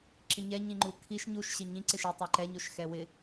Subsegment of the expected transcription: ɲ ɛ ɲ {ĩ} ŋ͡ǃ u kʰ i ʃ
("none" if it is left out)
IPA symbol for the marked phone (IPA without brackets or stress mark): ĩ